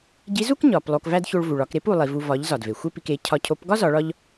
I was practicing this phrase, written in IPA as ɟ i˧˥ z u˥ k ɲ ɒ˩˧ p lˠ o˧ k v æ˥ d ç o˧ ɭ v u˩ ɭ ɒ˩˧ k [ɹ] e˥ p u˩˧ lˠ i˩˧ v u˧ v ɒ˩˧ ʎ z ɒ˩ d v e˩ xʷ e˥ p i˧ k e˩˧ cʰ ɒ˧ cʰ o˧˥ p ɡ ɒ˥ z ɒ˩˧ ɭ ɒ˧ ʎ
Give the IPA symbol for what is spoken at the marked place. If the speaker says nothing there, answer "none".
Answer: ɾ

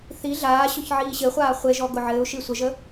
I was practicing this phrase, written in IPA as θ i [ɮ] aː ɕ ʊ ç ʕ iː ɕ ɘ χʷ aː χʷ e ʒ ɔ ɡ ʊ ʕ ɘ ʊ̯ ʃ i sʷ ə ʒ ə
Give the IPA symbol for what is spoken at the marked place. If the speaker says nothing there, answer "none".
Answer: ɮ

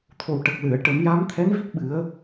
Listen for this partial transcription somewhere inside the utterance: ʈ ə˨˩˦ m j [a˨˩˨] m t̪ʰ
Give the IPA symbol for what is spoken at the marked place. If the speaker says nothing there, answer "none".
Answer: a˧˥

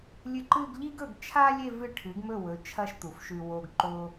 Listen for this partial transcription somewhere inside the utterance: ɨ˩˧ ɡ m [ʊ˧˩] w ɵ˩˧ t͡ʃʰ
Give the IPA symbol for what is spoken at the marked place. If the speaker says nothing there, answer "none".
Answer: ɵ˧˩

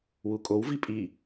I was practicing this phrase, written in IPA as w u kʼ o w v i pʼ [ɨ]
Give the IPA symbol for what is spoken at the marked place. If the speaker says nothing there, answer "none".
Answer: i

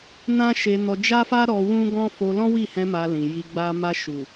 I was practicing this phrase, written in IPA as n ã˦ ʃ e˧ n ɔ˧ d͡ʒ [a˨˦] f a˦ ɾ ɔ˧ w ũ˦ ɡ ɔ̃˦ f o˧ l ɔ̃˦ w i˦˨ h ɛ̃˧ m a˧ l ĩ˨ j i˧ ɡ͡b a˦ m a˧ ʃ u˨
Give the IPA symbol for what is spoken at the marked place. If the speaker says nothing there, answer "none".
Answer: a˦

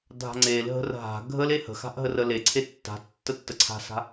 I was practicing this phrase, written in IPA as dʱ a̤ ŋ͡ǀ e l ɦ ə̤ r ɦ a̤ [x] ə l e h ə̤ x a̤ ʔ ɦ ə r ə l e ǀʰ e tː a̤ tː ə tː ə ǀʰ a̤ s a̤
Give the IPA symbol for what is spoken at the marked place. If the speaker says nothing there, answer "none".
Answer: ɡʱ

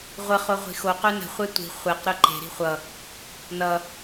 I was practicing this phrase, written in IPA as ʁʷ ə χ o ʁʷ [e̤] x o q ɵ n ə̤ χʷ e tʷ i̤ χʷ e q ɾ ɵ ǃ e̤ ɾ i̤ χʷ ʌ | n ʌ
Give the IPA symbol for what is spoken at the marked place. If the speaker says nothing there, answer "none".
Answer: i̤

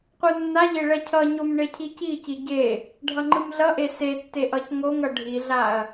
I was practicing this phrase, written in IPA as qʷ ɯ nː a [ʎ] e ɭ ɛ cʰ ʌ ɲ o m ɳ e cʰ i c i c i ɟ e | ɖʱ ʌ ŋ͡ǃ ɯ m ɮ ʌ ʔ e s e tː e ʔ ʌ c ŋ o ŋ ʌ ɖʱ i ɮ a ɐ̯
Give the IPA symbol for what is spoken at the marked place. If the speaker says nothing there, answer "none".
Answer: ʎ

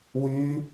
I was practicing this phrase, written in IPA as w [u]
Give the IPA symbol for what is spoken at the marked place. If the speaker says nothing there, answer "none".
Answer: y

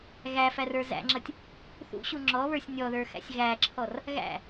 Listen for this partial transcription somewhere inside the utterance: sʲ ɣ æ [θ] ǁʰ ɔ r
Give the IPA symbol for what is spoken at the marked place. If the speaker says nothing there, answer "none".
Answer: none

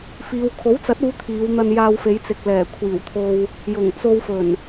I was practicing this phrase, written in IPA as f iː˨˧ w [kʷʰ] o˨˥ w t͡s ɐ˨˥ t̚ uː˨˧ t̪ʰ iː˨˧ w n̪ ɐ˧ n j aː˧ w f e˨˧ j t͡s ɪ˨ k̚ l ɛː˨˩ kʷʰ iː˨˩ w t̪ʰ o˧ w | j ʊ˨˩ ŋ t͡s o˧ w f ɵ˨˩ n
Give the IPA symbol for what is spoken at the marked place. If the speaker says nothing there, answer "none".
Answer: kʰ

